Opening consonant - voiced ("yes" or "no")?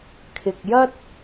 no